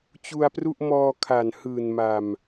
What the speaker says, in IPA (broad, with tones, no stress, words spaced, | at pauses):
t͡ɕu˧a̯pru˥˩ʔ mɔː˧kʰa˨˩n hɯː˨˩nma˨˩m